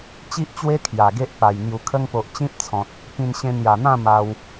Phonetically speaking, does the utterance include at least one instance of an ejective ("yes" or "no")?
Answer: no